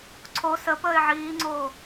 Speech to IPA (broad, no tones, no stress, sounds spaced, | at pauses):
ǀʰ o s ə p əː ɪ̯ ʕ iː ŋ͡ǀ oː